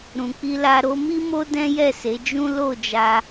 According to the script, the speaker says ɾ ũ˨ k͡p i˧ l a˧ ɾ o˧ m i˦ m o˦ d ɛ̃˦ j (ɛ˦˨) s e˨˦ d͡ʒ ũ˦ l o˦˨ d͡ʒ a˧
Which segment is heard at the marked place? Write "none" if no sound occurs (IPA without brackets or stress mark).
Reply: ɛ˦˨